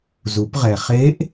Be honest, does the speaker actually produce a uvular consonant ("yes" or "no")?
yes